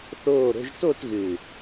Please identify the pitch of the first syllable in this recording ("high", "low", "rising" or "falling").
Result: falling